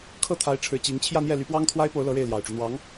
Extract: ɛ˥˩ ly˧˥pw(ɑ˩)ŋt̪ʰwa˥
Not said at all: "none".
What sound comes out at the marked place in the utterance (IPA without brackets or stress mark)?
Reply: ɑ˥